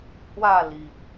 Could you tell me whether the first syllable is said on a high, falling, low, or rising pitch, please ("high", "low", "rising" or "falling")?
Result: falling